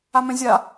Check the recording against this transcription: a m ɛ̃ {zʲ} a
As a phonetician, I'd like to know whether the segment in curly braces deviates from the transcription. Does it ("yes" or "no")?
no